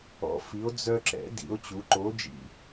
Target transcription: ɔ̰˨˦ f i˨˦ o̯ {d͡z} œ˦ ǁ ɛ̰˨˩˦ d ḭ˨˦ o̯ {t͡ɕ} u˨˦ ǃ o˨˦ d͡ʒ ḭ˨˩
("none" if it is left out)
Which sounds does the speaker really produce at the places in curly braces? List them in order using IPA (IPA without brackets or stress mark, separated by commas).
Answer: d͡z, t͡ɕ